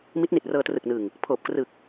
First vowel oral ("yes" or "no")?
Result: yes